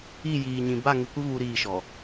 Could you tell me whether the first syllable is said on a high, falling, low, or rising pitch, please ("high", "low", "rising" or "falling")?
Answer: falling